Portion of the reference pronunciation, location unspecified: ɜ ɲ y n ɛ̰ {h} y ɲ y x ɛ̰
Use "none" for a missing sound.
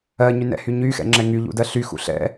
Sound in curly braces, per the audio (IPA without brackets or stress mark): h